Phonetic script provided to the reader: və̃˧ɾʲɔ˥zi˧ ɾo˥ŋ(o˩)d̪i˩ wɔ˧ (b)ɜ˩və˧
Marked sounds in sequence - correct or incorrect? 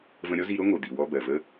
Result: correct, correct

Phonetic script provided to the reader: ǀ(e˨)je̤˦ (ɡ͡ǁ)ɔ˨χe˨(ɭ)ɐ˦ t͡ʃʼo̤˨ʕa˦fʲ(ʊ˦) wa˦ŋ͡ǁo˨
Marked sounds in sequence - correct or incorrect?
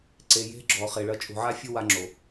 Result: correct, correct, correct, correct

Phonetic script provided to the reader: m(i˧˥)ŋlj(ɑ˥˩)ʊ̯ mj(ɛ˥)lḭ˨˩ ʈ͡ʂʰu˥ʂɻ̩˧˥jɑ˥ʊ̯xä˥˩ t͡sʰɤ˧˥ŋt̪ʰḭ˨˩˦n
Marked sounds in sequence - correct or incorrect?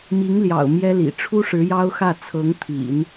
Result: correct, incorrect, correct

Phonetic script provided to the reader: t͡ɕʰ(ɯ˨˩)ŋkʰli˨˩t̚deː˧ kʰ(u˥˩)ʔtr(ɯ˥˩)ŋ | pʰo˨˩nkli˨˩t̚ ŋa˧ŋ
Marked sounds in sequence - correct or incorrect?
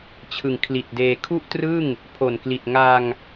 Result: correct, correct, correct

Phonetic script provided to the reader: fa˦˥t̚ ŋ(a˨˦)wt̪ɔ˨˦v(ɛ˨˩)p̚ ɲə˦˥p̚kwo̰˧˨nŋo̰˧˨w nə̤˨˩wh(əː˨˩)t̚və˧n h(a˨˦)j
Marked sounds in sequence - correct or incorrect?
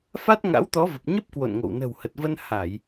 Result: incorrect, incorrect, incorrect, incorrect

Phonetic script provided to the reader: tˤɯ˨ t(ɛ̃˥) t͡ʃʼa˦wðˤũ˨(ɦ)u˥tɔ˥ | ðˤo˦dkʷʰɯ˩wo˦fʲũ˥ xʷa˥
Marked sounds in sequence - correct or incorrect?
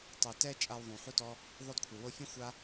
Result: incorrect, incorrect

